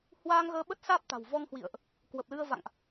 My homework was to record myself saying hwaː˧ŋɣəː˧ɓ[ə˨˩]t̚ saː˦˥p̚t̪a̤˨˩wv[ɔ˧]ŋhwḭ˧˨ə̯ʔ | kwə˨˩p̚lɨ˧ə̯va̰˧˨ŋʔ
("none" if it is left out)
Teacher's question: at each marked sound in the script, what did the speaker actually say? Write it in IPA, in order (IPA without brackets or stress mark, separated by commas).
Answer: ə˦˥, ɔ˧